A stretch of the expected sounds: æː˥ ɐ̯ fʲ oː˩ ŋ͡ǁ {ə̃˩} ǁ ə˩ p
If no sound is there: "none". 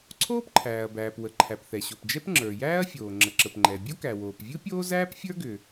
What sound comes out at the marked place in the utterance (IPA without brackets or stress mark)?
ə˩